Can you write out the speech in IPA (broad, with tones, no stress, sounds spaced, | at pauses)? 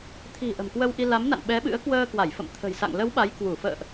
t̪ʰ i̤˨˩ ʔ ə̤˨˩ m k w ə˧ w ʔ i˧ l a˨˦ m n a̰˧˨ n ɓ ɛ˨˦ ɓ ɨ̰˧˥ ə̯ k w əː˧ k w a˧˩ j f ə̰˧˨ m t̪ʰ ə̤˨˩ j s a̰˧˨ ŋ l ə˨˦ w ɓ a˨˦ j k w u˧˩ f ə̰ː˧˨ ʔ